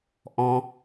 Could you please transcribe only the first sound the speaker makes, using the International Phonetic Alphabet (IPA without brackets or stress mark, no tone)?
ʔ